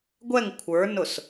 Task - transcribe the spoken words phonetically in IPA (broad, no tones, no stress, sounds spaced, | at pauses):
ɡʷ ɛ ŋ kʷʰ ə˞ n ʊ s